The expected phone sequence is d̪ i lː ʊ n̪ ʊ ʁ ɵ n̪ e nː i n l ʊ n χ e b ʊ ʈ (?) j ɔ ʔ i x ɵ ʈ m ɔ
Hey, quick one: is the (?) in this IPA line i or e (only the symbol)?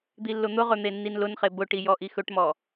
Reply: i